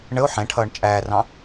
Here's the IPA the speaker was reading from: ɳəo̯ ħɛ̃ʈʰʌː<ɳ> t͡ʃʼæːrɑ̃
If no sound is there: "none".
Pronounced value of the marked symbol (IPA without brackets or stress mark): ɳ